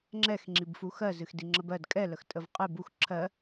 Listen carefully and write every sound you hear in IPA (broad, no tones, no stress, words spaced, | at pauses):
ŋ͡ǁɛx ŋ͡ǁibfuxɜ zɨxdiŋ͡ǁəbɜd kʼɛ ləxtʼəvqʼɨ bux ǁʰɜ